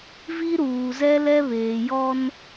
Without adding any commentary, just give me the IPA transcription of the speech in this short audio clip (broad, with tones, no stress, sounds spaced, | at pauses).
v i˦ ɾ uː˨ z ɛ˦ l ɛ˦ β eː˨ j ɔ˦ n